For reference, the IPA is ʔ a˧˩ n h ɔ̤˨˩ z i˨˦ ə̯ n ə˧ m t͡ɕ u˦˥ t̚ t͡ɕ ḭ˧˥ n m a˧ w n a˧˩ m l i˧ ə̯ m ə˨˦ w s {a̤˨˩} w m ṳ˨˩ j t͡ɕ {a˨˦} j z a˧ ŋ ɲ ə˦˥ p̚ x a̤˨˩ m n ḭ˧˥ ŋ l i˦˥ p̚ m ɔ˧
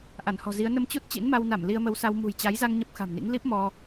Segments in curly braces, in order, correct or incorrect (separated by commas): incorrect, correct